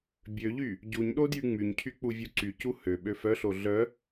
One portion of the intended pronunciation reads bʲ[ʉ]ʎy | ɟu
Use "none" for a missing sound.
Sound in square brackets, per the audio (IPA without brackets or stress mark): ø